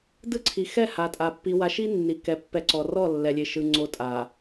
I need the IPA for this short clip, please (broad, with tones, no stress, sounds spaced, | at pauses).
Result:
d ɯ˦˨ ǀʰ i˨ x ɛ˦˨ h a˨ tʼ a˨ pː i˨ w a˨ ʃ i˦ nː i˨ k ɛ˨ pː ɛ˨˦ ǀ ɔ˨ r ɔ˦˨ lː ɛ˨ lʲ e˨ ʃ ɯ˨ ŋ͡ǀ o˨ tʼ a˨